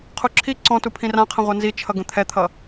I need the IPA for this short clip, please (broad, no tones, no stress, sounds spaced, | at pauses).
qʰ u ǁʰ i ǀ ɔ̃ t u pʰ ĩ r ã qʰ ə̃ ʁʷ a n z i t͡ʃʰ ʌ ɡ ə̃ t̪ʰ ɛ t̪ʰ ʌ